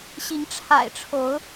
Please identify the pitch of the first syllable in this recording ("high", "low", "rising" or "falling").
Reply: rising